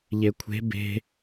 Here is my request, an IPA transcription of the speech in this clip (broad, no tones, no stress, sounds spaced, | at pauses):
ʎ e kʷʰ e̤ b e̤